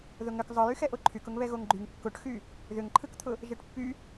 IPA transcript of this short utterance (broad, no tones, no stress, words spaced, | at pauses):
ðʊŋʏk zˤɯjyxɛʔo ǃʰykʊŋβɛ ɣoŋɡ͡ǃyŋ kːʊʈxy | ðʏŋǃʰɯkt̪ʰʊ | ʒɛʈpːy